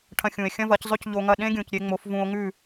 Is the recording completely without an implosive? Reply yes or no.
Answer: no